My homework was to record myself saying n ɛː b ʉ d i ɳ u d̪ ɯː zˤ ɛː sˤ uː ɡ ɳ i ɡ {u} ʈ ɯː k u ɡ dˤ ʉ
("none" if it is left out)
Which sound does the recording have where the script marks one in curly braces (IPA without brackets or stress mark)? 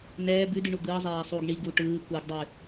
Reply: u